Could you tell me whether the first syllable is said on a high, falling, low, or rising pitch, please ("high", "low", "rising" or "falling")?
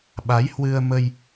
rising